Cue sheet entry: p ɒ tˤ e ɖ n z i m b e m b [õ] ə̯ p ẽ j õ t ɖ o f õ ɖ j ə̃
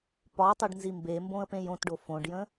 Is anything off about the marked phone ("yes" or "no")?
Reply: no